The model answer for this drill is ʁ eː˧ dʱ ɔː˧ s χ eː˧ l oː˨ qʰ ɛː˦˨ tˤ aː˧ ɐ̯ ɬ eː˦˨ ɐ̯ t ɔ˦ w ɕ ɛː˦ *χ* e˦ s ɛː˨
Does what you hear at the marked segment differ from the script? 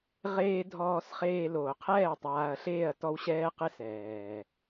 yes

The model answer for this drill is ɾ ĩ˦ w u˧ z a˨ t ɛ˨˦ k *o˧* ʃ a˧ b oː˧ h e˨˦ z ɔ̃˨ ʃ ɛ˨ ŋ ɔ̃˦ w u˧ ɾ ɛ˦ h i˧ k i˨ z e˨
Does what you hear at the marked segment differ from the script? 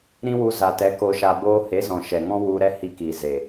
no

